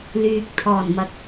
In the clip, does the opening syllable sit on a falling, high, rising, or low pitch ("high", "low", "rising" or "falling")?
low